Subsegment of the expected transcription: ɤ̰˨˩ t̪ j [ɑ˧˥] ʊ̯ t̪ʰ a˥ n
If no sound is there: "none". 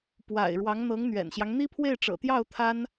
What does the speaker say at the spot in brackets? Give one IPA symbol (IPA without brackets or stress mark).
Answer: ɑ˥˩